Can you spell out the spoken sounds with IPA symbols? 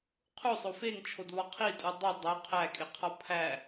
qʰ u sˤ o f e ŋ t͡ʃʰ o d β ɒ qʰ i tʼ u dˤ u dˤ o qʰ æ kʼ e qʰ ɒ pʰ æ

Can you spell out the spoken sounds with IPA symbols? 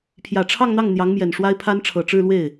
pʰ j ä˨˩ ʈ͡ʂʰ ɑ˥˧ ŋ n̪ ɑ˥˩ ŋ n̪ j ɑ˧˥ ŋ m j ɛ˨˩ n ʂ w a˥ ɪ̯ pʰ a˥ n ʈ͡ʂʰ ɤ˨˩ ʈ͡ʂ ɻ̩˥˧ l w e˥˩ ɪ̯

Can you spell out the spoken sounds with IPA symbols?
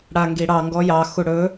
ɽ a ŋ ɡ i ɽ ɑ ŋ ɡ ɔ j ɑ x u ɽ ɵ

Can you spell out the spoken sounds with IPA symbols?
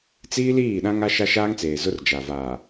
t͡s iː˦ l iː˦˨ ɗ ã˦ ŋ a˦ ʃ a˦ ʃ aː˦ ŋ t͡s eː˨ z ʊ˦ r d͡ʒ a˨ v aː˨

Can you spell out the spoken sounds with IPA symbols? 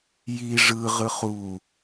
j i ʐ ɯ ʁ ɯ χ u

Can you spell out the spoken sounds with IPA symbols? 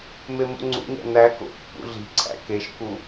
m e m ṵ ŋ͡ǀ ṵ ɲ æ̰ n æ k o̰ pː ṵ ɮ i̤ ǀʰ æ̰ k e ʃ k u

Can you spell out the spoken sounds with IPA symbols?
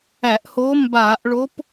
æ˧˩˧ ʔ h o˧˥ m b aː˧˩˧ ʔ ɭ o˧˥ p

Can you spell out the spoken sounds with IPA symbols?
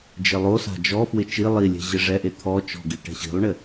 d͡ʒ ɪ lˠ o s a̤ d͡ʒ ɔ f w ɪ t͡ʃ i lˠ i lʲ ɛ̤ ʑ ɪ ʐ ɛ ʔ e t̪ʰ ɔ t͡ʃ ɔ̤ ɡ i ʈ ɛ̤ ɕ i̤ lˠ ɳ ɪ

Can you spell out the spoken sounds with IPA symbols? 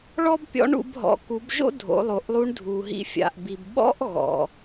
ɭ ɔ˥ b pʲ ɔ̰˧˥ ɳ ṵ˩˧ b ɦ ɔ̰˩˧ k u˩˧ b ʒ o̰˥ dʱ o̰˩˧ lˠ o˩ ʔ lˠ u˧˥ ɳ dʱ u˩ ɦ ḭ˧ fʲ a̰˩ ʔ b i˩ b ɓ ɔ̰˥ ʔ ɣ ɔ̰˩

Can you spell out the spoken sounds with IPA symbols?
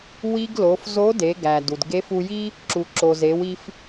w i˧ ɡ l o˩˧ f z o˧˥ d e˩˧ ɡ æ˩ d u˩ d ɡ e˧˥ f u˧ j i˥ | ǁ u˩ ǁ o˩ z e˩˧ w i˧ f

